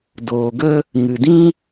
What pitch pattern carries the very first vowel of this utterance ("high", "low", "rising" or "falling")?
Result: low